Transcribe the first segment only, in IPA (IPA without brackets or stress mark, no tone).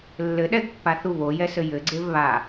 lː